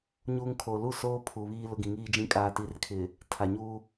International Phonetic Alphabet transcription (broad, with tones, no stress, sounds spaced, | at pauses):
ɲ uː˦ ŋ kʰ o˨ l u˦˨ s oː˦ pʰ u˨ β iː˦ l ʊ˦ ɡ ĩ˨ ŋ iː˦ d͡ʒ ĩ˦ kʼ aː˨ t i˨˦ r kʰ ɪ˨ | tʰ a˨ ɲ uː˦